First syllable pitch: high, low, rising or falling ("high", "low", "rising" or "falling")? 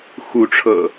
rising